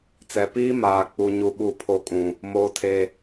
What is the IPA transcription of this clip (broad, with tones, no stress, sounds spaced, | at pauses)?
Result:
t͡s ɛ˨ p iː˦ m aː˨ k͡p u˦ ɲ u˦ ɓ u˦˨ pʰ o˦ kʼ ũ˨ | m oː˦ tʰ e˦